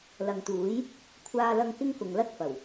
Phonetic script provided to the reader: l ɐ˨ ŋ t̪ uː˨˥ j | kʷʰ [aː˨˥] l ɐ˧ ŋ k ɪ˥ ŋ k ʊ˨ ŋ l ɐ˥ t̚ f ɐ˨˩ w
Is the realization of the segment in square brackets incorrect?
yes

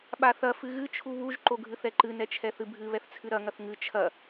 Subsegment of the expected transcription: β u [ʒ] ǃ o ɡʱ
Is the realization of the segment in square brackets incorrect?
no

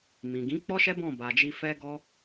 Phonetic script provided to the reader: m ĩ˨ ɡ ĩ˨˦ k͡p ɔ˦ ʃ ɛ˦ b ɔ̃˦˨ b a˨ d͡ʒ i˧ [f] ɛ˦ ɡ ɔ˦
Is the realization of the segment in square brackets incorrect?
no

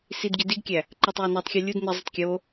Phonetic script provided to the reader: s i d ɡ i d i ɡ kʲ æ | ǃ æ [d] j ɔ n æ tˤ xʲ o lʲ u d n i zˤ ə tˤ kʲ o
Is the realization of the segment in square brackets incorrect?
yes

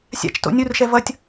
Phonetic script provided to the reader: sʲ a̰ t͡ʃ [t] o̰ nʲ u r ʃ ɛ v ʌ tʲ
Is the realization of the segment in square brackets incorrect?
no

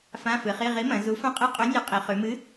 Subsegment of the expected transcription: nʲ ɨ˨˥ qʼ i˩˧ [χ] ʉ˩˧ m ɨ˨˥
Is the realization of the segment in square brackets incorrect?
no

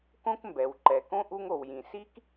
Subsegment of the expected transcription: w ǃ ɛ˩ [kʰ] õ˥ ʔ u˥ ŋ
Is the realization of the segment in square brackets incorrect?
yes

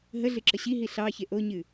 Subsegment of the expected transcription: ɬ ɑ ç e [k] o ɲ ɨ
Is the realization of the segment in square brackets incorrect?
yes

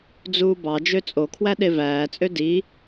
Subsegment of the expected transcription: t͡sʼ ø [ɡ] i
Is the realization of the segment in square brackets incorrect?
yes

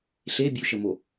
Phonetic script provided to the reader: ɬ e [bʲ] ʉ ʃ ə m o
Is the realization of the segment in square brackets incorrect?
no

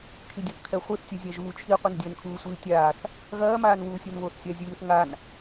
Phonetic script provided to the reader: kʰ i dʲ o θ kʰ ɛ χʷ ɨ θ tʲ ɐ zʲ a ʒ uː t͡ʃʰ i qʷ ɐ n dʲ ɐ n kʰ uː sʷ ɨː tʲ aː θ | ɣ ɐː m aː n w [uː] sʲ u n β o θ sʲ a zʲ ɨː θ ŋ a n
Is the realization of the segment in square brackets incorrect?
no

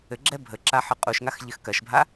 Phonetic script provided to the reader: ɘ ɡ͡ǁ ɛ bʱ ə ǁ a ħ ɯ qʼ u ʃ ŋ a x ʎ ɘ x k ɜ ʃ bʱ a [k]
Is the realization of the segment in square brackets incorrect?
yes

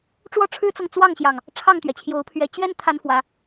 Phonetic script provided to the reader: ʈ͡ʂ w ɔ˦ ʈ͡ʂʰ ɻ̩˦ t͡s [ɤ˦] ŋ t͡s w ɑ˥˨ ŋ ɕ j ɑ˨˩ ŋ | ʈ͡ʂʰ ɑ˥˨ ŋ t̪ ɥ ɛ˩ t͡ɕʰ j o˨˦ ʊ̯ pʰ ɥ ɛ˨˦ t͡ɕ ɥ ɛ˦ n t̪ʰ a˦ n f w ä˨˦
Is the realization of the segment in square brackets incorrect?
yes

